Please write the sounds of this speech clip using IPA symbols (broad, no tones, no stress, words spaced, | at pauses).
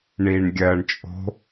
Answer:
ɳiːɳɡʲɜɳt͡ʃʼo̤